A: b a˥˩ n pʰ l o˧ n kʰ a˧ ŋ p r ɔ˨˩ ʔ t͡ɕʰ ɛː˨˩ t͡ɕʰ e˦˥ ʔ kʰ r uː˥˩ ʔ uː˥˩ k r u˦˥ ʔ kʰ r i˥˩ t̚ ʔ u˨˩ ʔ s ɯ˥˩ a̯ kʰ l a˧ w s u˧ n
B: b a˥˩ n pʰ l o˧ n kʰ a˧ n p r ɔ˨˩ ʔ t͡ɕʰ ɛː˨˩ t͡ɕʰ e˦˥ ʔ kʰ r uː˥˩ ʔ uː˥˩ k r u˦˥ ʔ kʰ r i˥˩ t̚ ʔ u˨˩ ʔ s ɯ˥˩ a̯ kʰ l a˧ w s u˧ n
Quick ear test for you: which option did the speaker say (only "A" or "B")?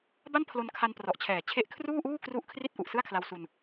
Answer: B